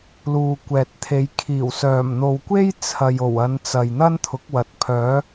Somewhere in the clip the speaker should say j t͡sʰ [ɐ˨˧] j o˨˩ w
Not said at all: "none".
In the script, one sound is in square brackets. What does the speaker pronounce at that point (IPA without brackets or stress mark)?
ɐ˨